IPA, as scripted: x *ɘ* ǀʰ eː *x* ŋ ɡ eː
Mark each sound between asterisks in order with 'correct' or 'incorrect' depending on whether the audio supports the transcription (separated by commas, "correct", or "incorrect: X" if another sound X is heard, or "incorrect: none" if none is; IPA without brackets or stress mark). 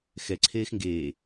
incorrect: ɛ, correct